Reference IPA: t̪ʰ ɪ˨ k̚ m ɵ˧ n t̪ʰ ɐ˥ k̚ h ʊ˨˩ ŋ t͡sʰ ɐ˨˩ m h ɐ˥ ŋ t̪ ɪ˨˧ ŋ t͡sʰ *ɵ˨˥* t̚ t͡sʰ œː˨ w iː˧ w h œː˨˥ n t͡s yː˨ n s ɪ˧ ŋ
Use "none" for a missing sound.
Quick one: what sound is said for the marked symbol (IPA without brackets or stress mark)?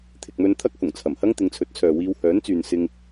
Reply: ɵ˨˥